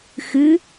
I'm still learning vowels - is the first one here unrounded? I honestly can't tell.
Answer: yes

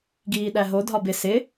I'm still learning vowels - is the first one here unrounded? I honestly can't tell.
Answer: yes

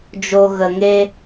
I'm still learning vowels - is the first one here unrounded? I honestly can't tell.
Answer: no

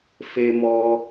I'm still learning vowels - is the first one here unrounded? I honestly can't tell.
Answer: yes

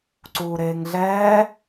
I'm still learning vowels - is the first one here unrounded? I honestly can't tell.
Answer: no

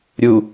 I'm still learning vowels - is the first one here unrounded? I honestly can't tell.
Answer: no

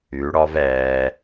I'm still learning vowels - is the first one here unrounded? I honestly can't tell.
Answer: no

